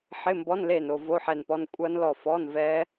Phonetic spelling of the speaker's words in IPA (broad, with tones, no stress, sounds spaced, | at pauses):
ħ ɪ˧˥˧ m b ɔ˧˥˧ n l e˦˨ n o˨ v o˧˥˧ ħ ɛ˦˨ n p ɔ˧˥˧ n kʷʼ ɐ˦˥ n l ɔ˦˨ f ɔ˧˥˧ n v ɛ˦˥